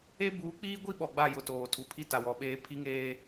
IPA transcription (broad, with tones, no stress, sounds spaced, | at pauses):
e˦ b uː˨˦ k͡p iː˦ ɡʷ i˦ ɓ ɔ˨ ɡ͡b a˦˨ j ʊ˨ t oː˨ tʰ u˨ pʰ i˦ t a˨ w ɔ˨ ɓ eː˦ pʰ i˦ ŋ eː˦